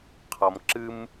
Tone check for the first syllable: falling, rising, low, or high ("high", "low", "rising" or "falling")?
low